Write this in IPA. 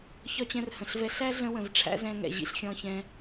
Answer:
ç ɒ˦ t͡ɕ ɛ̃˧ r h ə̃˨ ɬ v ɛ˧ ɬ æ˦ ɮ ə̃˦ w ə̃˨ v ʈ͡ʂʰ æ̰˦ z ɛ̃˧ ŋ ɛ̰˨ ʑ ḭ˧ ɬ xʲ ɔ̃˧ ç ɛ̃˧

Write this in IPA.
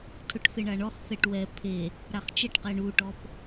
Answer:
tʰ ʊ ʈ θ ɪ ɳ a ɳ ɔ χ θ ɛ ʈ w ɛ pʰ e | ɾ a χ t͡ʃ ɛ ʈ q ɛ ɳ u ʈ ɔ p

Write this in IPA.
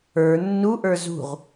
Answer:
ə˞ nː u ʔ ə˞ z ṳ ʁ

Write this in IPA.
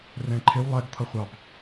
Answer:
r ɛ̃ ǃʰ ɪ w lˠ ɛ ɡ t̪ʰ ʌ χʷ ɑ b

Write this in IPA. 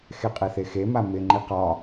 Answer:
x e qʼ e θ e x e m a m ɪ ŋ͡ǃ i q ɒ

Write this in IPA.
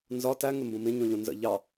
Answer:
n z ɒ t æ ŋ ɪ m b ũ m ĩ ɲ ũ ʎ ũ n z ə̰ ʎ ɑ

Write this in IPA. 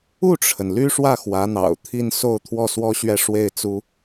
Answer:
u˥˩ ʈ͡ʂʰ ə˩ n l y˥ ʂ w ä˥˩ x w ä˧˥ n̪ ɑ̰˨˩ ʊ̯ t̪ʰ i˥˧ n s o˥˧ ʊ̯ t̪ʰ w ɔ˥˩ s w ɔ˥ ɕ ɥ ɛ˥˧ ʂ w e˥˩ ɪ̯ t͡s u˥

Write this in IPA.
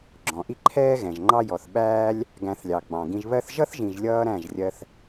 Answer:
ɡ͡ǁ ɔ̃˨ ʔ i˦ ǃʰ ɛː˦ ɣ ɛ̃˨ ʒ ŋ͡ǃ ɑ˦ j ɔ˨ θ ɓ æː˦ lʲ | ɡ æ̃˧ θ lʲ ɑ˨ ɡ͡b ɑ̃˨ ɡ ĩ˧ ʒ β ɜ˦ θ ʒ ʌ˦ θ ʒ ĩ˨ ʒ lʲ ʌː˧ ɾ æ̃˦˨ ʒ rʲ ɜ˧ θ

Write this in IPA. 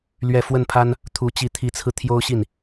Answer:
l ɥ ɛ˥˧ f w ə˥˩ n pʰ a˥ n | t̪ʰ u˧˥ t͡ɕ i˧˥ t̪ʰ i˧˥ t͡sʰ ɹ̩˧ t̪ʰ j o˥ ʊ̯ ɕ i˥˩ n

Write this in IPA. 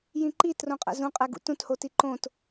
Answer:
j ĩ ǃ i t r õ qʼ æ̰ z ũ qʼ æ ɡ ṵ t ũ t h o t i ǃ õ t

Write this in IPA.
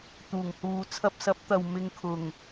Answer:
t̪ uː˨˩ ŋ h uː˨ t͡sʰ ɐ˧ p̚ s ɐ˨˥ p̚ t̪ ɐ˨ w m ɪ˧ ŋ kʰ ʊ˨˩ ŋ

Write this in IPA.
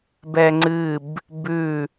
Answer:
b ɛ ŋ͡ǀ ɨ b | b ʉ

